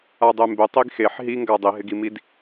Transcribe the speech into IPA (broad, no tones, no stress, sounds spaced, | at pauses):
a dˤ e m b ɪ tˤ i ɡ x e ħ ɦ i ŋ ɡ a dˤ i ɦ ɪ ɡ i m i d